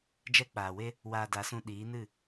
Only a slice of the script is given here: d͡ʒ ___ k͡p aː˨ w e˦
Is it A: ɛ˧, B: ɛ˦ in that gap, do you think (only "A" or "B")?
B